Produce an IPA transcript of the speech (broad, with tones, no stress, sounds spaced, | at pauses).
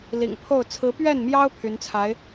l ḭ˨˩ ŋ pʰ o˥˩ ʊ̯ t͡sʰ ɹ̩˧˥ p ɥ ɛ˥˩ n m j ɑ˥ ʊ̯ pʰ y˧˥ n t͡sʰ a˧˥ ɪ̯